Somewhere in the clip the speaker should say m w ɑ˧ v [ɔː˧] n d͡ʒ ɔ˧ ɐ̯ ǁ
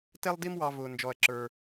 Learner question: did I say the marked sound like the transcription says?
no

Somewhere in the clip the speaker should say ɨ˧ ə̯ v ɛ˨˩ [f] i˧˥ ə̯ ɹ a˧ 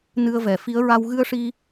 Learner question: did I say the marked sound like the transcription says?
yes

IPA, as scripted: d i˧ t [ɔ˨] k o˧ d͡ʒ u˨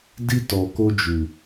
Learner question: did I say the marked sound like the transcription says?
yes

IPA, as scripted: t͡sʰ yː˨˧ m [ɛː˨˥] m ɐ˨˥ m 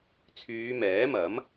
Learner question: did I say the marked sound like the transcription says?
yes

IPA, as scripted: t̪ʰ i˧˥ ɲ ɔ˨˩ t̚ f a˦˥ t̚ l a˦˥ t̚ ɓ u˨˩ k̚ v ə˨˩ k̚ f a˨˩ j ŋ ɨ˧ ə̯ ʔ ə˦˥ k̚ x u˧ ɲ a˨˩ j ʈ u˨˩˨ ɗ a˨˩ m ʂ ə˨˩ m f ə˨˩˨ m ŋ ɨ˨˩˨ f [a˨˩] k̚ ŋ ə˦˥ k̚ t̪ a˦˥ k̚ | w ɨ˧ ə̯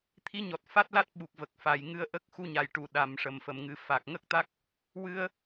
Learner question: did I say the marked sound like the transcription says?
yes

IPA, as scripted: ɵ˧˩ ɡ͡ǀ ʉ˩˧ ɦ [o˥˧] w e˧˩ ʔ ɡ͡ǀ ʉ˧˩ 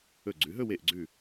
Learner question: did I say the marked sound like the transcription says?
no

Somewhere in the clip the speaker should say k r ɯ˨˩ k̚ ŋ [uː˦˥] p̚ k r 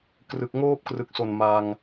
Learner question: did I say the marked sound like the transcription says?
no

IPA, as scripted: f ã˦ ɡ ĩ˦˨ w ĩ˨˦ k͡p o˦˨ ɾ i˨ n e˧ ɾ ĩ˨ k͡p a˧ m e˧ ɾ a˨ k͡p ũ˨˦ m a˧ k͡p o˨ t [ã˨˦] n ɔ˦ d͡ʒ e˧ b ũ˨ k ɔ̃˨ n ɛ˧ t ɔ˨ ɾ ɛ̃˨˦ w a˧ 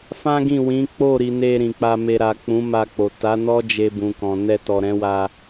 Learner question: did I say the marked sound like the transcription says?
no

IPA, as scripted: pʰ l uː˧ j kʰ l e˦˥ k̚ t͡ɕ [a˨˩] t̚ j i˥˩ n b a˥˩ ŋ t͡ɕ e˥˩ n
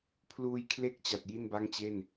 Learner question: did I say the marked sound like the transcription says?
yes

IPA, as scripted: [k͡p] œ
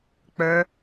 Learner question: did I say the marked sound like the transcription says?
yes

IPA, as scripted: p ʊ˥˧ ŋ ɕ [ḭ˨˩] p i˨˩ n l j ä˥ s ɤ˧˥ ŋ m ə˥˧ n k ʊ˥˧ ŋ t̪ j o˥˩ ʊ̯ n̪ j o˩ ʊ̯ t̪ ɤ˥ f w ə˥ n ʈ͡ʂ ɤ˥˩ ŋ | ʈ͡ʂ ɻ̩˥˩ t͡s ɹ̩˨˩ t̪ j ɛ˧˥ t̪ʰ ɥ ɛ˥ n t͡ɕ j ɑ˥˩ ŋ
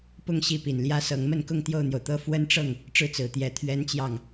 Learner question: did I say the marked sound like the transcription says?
no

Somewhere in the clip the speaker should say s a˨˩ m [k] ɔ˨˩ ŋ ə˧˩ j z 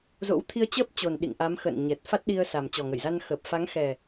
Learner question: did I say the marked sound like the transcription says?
no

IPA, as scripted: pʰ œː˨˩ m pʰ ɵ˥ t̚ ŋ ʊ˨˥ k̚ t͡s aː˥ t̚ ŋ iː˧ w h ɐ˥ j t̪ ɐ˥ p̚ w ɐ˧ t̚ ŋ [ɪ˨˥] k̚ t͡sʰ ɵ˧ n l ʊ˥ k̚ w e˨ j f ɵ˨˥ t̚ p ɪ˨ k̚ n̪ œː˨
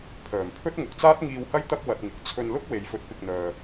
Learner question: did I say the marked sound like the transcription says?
no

